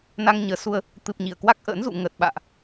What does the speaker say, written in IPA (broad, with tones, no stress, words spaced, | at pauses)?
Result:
na˧ŋ ɲəː˨˩su˧ə̯ | t̪ɨ˨˩p̚ ɲi˧˩ə̯kwa˦˥k̚ʔə̰ː˧˥nzṵ˧˨ ŋəː˨˩t̚ɓa̰ː˧˨ʔ